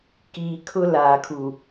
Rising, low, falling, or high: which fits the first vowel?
low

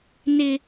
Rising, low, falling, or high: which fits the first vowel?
low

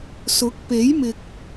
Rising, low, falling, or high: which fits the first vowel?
rising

